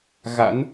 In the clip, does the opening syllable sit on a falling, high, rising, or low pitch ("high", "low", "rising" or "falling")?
rising